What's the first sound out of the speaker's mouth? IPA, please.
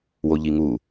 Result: w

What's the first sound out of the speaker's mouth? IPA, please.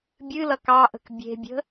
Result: bʲ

